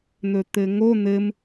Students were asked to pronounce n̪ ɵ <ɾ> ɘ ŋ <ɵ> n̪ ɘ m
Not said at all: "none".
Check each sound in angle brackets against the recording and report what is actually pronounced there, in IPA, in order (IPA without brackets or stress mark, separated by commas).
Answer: t̪, o